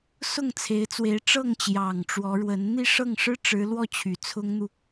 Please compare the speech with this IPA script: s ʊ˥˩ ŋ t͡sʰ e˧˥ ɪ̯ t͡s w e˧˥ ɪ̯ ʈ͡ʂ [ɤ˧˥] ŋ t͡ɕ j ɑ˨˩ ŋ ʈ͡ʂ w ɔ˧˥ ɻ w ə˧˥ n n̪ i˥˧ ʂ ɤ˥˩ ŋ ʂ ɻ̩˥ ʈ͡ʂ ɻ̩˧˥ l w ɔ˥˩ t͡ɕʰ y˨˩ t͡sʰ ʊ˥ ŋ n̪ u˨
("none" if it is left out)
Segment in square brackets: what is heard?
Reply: ɤ˥˩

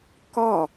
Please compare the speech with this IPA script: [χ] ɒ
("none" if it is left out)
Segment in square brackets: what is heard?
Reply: k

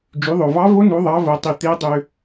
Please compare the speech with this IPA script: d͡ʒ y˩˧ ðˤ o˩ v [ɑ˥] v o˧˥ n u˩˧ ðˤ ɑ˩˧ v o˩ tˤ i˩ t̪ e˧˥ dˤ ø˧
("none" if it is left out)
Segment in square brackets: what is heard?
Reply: ɑ˧˥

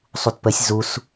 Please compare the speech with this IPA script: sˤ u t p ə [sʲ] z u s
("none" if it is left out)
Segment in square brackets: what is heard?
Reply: sʲ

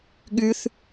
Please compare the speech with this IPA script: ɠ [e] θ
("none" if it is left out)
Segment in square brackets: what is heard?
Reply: y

